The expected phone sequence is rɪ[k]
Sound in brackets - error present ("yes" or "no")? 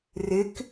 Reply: no